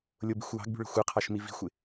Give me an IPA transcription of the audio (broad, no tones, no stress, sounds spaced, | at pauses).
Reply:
lʲ ʊ b i̤ xʷ w ɑ̤ ɡ b ṳ ɭ ə̤ xʷ ɜ qʰ ɑ ʃ m i v i̤ xʷ ɪ